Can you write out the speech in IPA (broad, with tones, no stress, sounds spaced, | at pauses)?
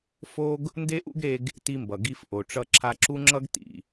f o˥ ɡ | n d e˥ ʔ ṵ˥ ɡ ɾ e˧ ɡ | t i˧ m b ʌ˩ ɡ i˧ f ʔ o˩ ʈ͡ʂ ʌ˧ ǁʰ a˧ ǁ u˥ ŋ͡ǁ ʌ˥ ɡ t ḭ˩